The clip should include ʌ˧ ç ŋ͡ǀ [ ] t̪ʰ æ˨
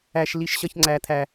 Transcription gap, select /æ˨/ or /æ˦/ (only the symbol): æ˨